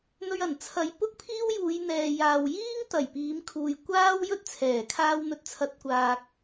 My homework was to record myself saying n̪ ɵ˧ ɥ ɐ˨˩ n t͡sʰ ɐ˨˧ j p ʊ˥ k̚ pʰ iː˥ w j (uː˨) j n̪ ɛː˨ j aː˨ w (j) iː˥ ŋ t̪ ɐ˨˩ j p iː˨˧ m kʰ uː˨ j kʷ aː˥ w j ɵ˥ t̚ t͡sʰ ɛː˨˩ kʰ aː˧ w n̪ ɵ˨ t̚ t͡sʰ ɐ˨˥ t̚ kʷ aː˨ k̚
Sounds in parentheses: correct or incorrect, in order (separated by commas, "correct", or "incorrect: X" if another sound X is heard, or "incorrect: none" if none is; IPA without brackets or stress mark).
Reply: incorrect: uː˨˧, correct